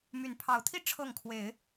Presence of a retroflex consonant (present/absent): present